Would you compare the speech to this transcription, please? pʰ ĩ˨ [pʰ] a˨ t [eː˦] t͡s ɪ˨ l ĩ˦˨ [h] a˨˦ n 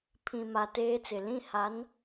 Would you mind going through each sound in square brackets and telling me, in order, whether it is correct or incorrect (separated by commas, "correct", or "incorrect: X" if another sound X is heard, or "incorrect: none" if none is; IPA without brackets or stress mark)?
incorrect: m, correct, correct